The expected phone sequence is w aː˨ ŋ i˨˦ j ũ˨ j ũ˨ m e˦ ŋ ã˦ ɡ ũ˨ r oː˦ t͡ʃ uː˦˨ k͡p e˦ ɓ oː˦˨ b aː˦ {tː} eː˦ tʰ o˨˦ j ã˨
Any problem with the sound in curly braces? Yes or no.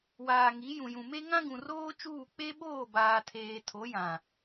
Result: yes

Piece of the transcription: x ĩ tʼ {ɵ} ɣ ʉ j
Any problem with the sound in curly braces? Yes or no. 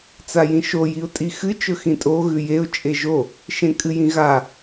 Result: yes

